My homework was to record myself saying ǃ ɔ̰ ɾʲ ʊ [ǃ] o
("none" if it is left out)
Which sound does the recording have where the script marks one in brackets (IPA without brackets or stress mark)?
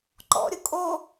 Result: kʼ